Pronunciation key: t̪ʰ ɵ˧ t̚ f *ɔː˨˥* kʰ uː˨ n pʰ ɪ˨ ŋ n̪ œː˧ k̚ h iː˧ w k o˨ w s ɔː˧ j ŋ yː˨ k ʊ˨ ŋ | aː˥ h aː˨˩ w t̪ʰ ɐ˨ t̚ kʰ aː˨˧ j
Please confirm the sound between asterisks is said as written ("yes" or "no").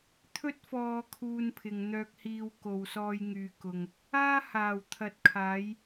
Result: no